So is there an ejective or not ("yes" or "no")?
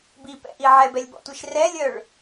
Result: no